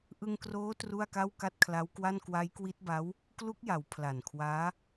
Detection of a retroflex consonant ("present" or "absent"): absent